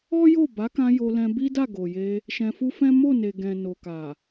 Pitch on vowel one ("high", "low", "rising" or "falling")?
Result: high